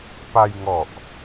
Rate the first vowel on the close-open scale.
open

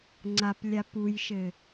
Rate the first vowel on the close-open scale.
open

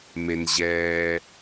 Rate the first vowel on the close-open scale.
mid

